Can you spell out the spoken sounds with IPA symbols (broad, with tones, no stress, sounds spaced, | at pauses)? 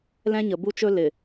l ɛ̃˦ ɲ ə˨ b u˦ t͡ʃ ɵ˦ l ɪ˨